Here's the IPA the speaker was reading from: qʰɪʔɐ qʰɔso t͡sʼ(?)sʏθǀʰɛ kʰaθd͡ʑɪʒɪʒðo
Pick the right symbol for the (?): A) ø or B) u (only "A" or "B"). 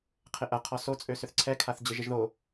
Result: A